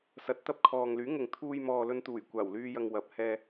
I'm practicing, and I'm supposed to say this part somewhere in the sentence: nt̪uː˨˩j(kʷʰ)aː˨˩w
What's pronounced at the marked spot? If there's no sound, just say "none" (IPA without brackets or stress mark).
kʷ